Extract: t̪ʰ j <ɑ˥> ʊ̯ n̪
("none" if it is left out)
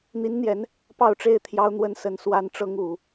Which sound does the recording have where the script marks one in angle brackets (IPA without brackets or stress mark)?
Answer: ɑ˥